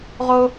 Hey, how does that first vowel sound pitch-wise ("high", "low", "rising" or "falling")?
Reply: high